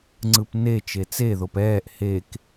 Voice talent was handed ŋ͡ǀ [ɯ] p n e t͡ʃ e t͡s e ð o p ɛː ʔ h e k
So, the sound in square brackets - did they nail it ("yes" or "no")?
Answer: yes